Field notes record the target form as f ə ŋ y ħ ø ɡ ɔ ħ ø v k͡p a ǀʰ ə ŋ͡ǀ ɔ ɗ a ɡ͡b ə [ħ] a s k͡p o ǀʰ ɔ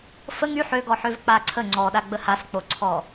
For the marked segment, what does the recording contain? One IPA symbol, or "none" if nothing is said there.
h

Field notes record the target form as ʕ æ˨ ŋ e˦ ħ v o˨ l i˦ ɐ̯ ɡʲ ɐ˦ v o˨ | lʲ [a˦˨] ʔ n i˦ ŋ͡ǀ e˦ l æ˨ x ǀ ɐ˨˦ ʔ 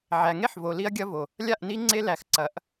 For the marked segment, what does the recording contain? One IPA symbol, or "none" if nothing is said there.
a˦˨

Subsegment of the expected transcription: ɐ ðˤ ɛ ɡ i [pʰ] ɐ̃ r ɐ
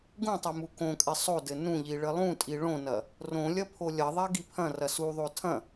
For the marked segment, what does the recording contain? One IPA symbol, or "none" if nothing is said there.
pʰ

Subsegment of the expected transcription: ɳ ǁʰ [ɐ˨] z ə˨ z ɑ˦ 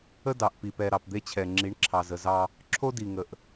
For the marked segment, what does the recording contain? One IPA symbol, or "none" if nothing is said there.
ɑ˨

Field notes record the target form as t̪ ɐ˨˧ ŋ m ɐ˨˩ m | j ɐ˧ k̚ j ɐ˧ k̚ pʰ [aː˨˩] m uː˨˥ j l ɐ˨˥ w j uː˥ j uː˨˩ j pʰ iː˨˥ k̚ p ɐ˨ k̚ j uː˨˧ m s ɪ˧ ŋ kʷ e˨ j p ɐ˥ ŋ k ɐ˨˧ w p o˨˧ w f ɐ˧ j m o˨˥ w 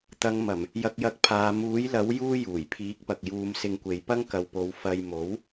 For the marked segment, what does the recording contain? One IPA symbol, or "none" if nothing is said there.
aː˨˧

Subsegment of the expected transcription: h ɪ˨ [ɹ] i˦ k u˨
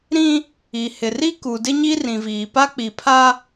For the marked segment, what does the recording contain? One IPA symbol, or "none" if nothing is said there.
r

